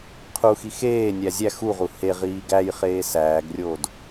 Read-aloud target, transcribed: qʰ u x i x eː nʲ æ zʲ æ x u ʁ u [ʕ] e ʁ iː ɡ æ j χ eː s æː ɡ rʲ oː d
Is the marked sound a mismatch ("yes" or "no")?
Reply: yes